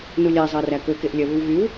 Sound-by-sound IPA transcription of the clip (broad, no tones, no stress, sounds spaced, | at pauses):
n u lʲ æ zˤ ɑ r æ k ɵ k e ʔ lʲ œ β ʉ w ɣ y w